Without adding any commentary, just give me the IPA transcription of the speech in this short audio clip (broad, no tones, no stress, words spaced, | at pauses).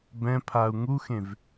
bɛ̃pʰau̯ ŋuxẽv